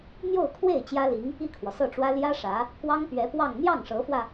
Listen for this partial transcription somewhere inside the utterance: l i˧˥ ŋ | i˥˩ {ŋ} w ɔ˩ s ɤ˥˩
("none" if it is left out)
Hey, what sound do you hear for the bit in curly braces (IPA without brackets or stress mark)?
kʰ